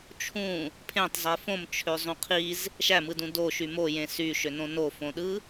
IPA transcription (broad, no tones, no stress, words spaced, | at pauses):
t͡ʃʰũ | pʰẽtˤzˤe fõmt͡ʃʰøzˤũ qʰiz | ʃæmɯdũ doʃy mojẽ syʃønõ nofõɗɯ